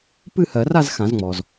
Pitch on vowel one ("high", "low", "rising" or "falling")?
falling